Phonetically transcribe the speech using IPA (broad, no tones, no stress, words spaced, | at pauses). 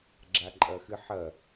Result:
ɡ͡ǁaǃʼɐxɨħɐ